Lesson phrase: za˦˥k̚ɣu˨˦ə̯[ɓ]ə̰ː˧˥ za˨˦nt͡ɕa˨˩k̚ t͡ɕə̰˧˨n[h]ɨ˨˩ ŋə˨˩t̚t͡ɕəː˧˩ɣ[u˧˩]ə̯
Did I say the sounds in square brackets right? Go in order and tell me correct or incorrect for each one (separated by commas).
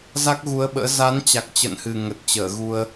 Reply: correct, correct, incorrect